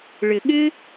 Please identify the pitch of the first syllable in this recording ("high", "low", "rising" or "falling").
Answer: low